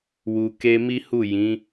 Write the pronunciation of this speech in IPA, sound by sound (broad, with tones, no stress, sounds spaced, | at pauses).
w u˨ k e˧ m i˦ h u˦˨ j ĩ˨˦